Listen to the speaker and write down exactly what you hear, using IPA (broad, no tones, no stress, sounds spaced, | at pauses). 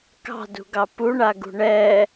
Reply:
k ɑ̤ d ṳ ɡ ɑ p u ɳ a ɡ ṳ ɳ ɛ